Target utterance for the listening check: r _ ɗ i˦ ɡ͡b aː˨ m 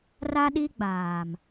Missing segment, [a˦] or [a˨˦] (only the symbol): a˦